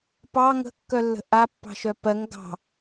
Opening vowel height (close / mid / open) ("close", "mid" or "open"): open